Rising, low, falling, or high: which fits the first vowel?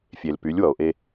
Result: low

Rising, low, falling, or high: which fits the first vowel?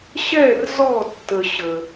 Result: falling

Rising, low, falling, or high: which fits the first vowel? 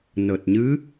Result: low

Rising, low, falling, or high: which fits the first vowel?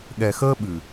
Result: low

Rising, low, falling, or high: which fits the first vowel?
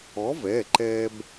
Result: rising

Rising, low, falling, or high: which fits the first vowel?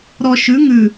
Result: low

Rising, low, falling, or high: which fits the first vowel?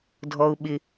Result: high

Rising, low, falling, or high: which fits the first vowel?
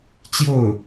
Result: falling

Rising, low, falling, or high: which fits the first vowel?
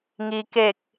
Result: low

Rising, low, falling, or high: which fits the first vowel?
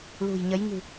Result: low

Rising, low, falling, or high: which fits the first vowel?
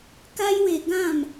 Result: high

